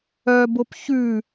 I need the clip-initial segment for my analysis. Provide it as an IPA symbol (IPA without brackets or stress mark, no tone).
œ